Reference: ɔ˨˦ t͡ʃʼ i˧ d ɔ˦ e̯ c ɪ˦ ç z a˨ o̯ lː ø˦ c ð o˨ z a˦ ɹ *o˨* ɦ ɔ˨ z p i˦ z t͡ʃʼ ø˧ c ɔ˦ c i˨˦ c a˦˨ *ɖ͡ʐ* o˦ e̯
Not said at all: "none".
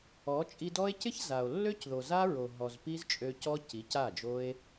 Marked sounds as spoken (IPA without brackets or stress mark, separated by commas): o˨, d͡ʒ